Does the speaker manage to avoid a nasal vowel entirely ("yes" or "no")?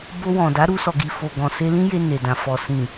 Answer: no